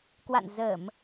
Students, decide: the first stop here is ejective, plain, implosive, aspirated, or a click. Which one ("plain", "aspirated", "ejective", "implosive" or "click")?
plain